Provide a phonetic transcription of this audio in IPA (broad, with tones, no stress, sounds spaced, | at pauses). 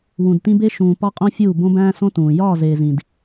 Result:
w ũ˨ d t ĩ˦ b e˦ ʃ ũː˨ p ɒ˦ qʼ õ˦ fʲ uː˦˨ b õ˦ b æ̃ː˦ s õ˦ t ũː˨ j ɒː˦˨ z eː˨ z ĩ˨ d